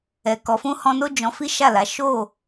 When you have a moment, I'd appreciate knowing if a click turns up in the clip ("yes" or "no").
no